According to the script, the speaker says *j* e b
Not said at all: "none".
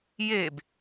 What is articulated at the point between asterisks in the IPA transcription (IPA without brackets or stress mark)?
j